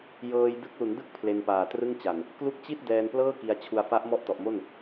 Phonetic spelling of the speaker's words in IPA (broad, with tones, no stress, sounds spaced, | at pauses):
j ɤː˧ j d ɯ˦˥ k̚ l u˩˦ n d ɯ˥˩ k̚ pʰ l e˧ n p aː˨˩ t r ɯ˥˩ ŋ t͡ɕ a˨˩ n | k l u˦˥ k̚ t͡ɕ i˥˩ t̚ d ɛː˧ n p l ɤː˥˩ k i˧ a̯ t͡ɕʰ u˧ a̯ f a˦˥ ʔ m ɔ˦˥ ʔ t ɔ˨˩ ʔ m o˥˩ n